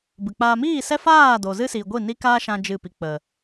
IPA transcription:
b ɨ˨ k͡p a˧ m iː˦˨ s ɛ˦ f aː˦˨ d o˨ z ɨ˦ s iː˨ ɡʷ i˦˨ n i˦ k aː˦ ʃ ã˧ d͡ʒ ɨ˦˨ p i˧ k͡p ə˨

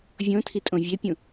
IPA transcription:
vʲ õ tʰ i tʼ õ vʲ e pʲ ũ

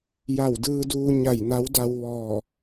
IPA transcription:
j a˧˩ w d ɯː˧ d uː˧ ɲ a˧˩ j n a˧˥ w d a˧ w ʋ ɔː˧˩

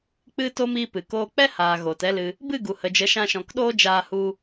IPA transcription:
k͡p ɨ˧ t o˧ m iː˦ p ɨ˨ k oː˦ k͡p ɛ˦ h aː˨ ɣ oː˨ t ɛ˦ l ɨ˧ | b ɨ˦˨ ɡ u˨ h ə˨ d͡ʒ ə˨˦ ʃ ã˧ ʃ ɔ̃˨ k ɗ oː˦ d͡ʒ aː˧ h u˧

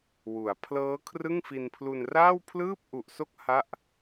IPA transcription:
w u˩˦ a̯ pʰ l ɤː˦˥ kʰ r ɯ˥˩ ŋ f i˧ n pʰ l u˧ n r aː˥˩ w pʰ l ɯː˥˩ p̚ ʔ u˨˩ ʔ s o˥˩ k̚ h a˥˩ ʔ

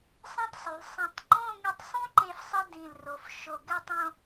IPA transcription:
sˤ ĩ˥ tˤ sˤ y˩˧ l sˤ ĩ˧˩ tˤ ŋ͡ǃ õ˥˧ ŋ i˧ tˤ sˤ ũ˥ ǃ e˥˧ f sˤ i˥ d ĩ˧˩ l r o˩˧ f ʃ o˧˩ ɡ ɛ˥˧ tˤ õ˥˧

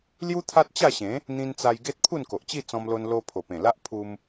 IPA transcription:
l j u˦ t̪ʰ a˦ t̚ t͡ɕ a˥˧ ɕ ẽ˨˦ | n̪ ĩ˧ n t͡s a˧ j ɡ e˦ t̚ pʰ u˥˧ n k o˨ ʔ t͡ɕ i˥˧ t͡s ɔ̃˧ m l o˧ n l o˧ pʰ o˨˩ p ẽ˨˩ l a˦ ʔ pʰ u˧ m

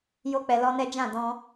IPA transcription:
j o˦ k͡p ɛ˧ l ɔ˦ n ɛ˦ d͡ʒ ã˦˨ d ɔ̃˧

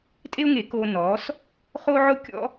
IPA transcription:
tʼ e˦ ʊ̯ ŋ e˨˦ k oː˧ n ɔː˨˦ s | χ o˦ ʕ ʊ˦ kʲ ɔ̰˦

